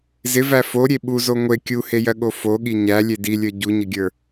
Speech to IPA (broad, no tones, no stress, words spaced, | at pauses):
zɪvæ foɾʲe ɓuzo ŋʷe kʲuhejɜɠo foɠi ɲælʲe dilʲə˞ ɟuɲɪɡʲə˞